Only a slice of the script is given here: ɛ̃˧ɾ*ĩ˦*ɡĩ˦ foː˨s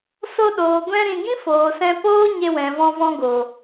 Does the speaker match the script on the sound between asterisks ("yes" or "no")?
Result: no